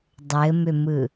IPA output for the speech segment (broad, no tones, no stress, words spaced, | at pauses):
dˤɘmʏmɯ